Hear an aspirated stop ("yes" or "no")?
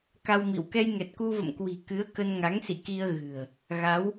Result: no